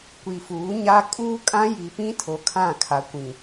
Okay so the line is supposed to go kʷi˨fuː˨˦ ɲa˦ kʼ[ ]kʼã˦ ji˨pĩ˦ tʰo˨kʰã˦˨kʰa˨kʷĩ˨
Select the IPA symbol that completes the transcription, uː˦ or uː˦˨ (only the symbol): uː˦